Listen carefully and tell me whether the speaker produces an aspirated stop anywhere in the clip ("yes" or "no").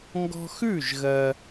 no